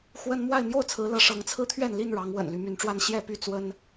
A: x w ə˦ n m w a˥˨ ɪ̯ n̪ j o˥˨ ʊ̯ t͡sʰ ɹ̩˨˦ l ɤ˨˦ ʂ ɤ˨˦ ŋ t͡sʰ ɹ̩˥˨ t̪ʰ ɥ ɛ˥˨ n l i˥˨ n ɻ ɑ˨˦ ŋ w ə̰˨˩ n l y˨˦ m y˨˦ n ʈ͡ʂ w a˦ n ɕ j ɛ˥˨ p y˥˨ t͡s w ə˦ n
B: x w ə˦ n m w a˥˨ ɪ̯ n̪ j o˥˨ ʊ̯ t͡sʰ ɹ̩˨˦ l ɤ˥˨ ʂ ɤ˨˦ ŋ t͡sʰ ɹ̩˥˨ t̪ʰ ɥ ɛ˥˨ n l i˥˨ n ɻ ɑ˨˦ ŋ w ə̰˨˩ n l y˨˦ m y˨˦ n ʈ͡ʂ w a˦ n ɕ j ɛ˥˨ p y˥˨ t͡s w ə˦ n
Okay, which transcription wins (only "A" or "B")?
A